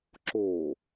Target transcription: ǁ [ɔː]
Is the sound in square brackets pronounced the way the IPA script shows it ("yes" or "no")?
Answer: no